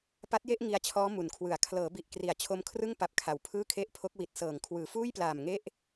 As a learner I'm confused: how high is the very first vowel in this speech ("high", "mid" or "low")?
low